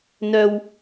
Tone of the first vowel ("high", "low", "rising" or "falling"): high